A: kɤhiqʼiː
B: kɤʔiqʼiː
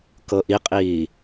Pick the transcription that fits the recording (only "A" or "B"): B